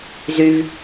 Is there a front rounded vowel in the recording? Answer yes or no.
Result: yes